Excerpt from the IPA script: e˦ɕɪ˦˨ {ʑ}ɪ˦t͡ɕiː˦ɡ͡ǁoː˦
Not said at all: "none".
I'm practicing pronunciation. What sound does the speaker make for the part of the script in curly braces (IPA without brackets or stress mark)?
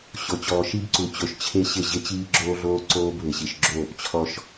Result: ʑ